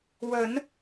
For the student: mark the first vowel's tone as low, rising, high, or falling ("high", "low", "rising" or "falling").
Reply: rising